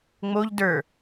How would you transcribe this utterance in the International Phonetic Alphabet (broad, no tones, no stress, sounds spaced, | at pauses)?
ŋ͡m o ʎ d ə˞